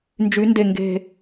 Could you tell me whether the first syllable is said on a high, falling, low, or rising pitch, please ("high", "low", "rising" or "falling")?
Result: rising